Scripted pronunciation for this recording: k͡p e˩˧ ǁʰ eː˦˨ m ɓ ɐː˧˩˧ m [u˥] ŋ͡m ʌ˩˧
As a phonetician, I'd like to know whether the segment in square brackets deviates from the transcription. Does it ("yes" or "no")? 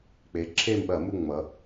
yes